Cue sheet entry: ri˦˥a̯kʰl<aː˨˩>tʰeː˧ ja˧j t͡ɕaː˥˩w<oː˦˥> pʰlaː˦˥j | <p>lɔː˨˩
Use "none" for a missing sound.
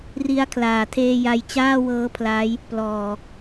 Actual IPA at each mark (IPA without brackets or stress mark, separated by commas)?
aː˨˩, ɤː˦˥, p